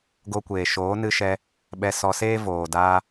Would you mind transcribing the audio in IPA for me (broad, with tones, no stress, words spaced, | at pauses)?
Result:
ɡo˧kʷeː˨ʃoː˨˦ nɨ˧ʃɛ˧ | ɓɛ˧sɔ˧seː˦ voː˨daː˧